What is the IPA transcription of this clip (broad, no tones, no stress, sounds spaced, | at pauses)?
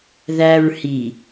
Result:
ð æ ɹ h i